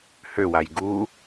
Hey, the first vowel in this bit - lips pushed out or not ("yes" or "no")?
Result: yes